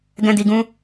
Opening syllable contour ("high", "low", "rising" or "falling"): high